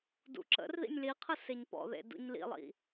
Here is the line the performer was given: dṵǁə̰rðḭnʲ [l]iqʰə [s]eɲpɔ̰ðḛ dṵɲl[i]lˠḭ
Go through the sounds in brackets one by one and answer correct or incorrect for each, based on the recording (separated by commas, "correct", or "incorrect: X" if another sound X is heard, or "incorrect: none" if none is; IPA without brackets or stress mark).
correct, correct, incorrect: ḭ